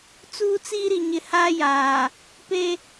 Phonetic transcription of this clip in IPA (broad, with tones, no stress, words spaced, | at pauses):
t͡suː˦t͡si˦ɾi˨ ɲɪ˨ haː˦jaː˨ | pe˦